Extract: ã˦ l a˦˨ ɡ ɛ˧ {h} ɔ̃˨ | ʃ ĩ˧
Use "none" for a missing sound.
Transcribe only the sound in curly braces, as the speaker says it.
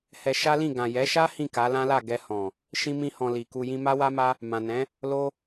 h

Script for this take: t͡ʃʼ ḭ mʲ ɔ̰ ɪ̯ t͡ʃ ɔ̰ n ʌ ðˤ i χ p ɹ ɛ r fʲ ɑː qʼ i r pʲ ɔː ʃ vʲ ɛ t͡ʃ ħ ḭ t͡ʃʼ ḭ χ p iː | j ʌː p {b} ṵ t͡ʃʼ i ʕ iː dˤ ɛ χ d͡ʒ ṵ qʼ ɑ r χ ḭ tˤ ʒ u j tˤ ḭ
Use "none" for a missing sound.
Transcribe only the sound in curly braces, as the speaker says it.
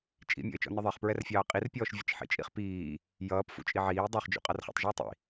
f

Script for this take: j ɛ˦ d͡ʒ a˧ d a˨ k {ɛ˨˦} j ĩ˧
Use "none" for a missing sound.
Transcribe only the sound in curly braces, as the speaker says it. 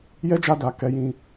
ɛ˨˦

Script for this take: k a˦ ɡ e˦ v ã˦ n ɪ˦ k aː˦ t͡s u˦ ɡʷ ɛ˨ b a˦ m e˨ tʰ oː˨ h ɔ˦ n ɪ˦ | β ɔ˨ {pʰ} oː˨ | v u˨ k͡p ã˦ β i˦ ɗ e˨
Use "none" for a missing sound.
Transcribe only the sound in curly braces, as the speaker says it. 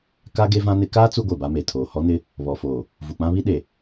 f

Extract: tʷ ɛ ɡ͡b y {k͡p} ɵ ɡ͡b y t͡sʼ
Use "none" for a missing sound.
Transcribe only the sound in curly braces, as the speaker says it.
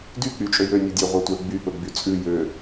p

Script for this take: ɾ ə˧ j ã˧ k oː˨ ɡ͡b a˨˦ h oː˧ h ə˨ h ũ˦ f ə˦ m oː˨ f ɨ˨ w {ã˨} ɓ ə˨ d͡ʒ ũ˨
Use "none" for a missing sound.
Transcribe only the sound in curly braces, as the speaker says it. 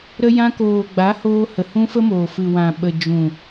ã˨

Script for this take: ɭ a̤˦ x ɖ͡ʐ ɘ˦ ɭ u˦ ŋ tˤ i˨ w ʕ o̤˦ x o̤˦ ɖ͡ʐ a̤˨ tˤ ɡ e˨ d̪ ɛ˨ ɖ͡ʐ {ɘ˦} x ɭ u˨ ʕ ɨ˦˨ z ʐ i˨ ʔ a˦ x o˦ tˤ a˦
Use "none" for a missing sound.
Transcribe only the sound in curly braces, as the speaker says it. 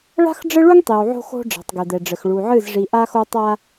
ɘ˨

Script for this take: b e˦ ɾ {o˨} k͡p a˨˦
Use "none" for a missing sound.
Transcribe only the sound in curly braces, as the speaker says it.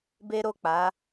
o˦˨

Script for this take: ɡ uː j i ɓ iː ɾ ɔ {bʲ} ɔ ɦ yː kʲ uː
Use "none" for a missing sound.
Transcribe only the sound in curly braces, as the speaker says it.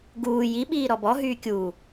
b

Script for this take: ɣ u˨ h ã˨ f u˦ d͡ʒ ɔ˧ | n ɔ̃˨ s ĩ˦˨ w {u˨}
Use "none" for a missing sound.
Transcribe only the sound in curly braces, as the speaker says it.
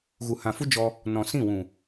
ũ˨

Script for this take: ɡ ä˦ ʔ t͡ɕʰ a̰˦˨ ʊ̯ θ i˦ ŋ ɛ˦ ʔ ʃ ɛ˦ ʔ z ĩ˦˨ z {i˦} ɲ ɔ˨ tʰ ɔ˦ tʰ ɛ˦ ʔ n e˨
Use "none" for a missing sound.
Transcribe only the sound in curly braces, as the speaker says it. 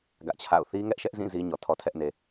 i˦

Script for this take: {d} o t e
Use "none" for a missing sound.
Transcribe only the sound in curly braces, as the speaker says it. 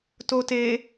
t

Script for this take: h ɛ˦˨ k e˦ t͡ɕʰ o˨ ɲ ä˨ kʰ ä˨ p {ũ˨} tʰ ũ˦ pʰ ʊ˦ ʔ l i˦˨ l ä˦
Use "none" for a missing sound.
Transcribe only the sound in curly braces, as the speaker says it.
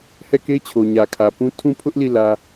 ũ˦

